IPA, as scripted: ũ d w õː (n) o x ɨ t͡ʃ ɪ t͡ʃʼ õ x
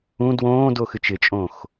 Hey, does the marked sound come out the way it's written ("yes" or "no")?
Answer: no